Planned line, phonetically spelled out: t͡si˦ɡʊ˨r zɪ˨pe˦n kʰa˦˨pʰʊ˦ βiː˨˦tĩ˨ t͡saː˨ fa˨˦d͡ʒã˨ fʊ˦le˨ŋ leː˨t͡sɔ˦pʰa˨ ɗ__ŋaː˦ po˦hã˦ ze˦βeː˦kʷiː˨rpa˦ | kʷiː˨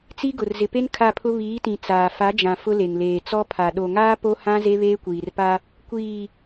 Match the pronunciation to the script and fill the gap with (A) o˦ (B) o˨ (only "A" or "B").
B